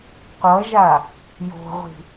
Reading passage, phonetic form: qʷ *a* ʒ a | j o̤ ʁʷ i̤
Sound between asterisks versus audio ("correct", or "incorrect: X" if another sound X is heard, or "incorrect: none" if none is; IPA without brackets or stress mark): incorrect: ʌ